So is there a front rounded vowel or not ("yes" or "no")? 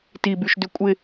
yes